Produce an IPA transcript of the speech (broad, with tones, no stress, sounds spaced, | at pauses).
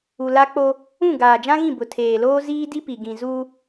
u˨ l a˦ k͡p o˦ | ũ˦˨ ɡ aː˨ d͡ʒ ã˦ ɣ ĩ˦˨ b ʊ˨ tʰ eː˨ l oː˦ z iː˦ d i˦ p i˨ ɡ ĩ˨ z u˦